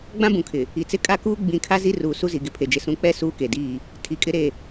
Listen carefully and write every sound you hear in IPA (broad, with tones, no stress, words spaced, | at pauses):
ɡ͡bã˦bũ˨kʰɪ˨ | i˨t͡sɪ˦kʼa˦kuː˦ ɡ͡bĩ˨kʰa˦zi˦ ruː˨ su˦zi˨ ɡɪ˨pʰe˨d͡ʒɪ˨ sũ˨k͡pɛ˦˨ suː˦ke˨diː˦˨ | tʰi˨kʼɪ˦ɾe˦˨